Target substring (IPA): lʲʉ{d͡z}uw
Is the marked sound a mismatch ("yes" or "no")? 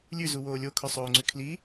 yes